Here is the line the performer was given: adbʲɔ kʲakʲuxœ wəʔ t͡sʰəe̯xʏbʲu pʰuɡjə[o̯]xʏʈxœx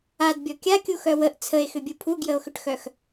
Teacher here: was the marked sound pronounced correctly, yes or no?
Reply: yes